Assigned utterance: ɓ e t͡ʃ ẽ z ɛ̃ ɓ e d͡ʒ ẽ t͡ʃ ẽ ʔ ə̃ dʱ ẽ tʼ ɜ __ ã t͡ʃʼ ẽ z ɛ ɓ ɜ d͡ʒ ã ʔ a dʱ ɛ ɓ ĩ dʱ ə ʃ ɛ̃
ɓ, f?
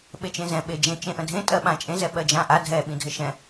ɓ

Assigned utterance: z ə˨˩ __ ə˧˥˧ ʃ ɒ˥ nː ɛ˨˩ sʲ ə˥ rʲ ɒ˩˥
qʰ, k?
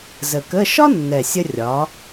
k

